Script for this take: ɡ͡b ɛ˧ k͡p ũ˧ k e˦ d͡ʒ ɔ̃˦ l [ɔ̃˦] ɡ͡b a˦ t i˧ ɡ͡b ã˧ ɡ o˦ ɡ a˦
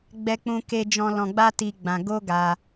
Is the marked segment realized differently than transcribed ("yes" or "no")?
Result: yes